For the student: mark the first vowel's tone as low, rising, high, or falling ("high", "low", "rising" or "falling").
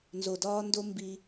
low